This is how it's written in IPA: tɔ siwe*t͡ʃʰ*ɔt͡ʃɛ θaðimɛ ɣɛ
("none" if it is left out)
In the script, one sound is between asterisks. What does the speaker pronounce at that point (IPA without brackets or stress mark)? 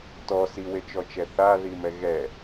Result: t͡ʃ